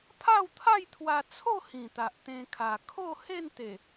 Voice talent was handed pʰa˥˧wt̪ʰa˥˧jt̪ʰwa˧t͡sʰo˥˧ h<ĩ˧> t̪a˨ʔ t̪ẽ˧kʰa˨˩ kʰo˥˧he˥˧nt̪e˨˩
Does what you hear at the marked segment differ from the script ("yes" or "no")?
yes